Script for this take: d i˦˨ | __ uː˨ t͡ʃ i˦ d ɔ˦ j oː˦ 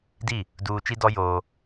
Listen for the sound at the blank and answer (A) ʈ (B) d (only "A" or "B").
B